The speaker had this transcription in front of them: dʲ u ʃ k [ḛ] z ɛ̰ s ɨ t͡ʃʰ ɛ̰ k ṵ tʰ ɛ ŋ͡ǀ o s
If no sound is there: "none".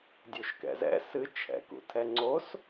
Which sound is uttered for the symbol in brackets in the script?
ɛ̰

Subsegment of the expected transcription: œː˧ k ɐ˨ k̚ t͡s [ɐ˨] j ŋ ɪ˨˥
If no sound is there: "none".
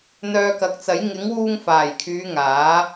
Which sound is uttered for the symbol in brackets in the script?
ɐ˨˥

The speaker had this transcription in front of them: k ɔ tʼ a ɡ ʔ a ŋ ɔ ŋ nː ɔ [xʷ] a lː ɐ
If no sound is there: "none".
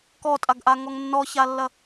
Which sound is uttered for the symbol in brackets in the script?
ç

